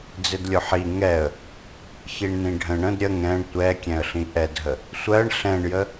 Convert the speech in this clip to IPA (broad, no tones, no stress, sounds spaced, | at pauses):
d͡z ɪ d lʲ ʊ ħ i ŋ ɛ ə̯ | ç i ɳ n ĩ ɖʱ ə̃ ɳ ə̃ d ɾʲ ə ŋ ɛ̃ ɳ tʷ ɛ kʲ ɛ̃ ə̯ ɬ ĩ ʔ ɛ d ɦ ə | sʷ ɜ ɳ ɬ ɛ̃ ɳ j ə